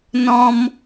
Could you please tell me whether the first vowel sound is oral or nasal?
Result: nasal